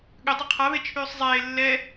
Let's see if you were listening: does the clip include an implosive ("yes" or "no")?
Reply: yes